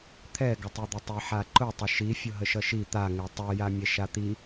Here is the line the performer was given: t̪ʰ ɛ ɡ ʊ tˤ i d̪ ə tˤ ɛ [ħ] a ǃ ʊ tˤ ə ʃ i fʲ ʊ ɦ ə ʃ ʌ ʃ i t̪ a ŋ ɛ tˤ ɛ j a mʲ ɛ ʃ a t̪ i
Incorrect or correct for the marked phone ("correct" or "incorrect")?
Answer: correct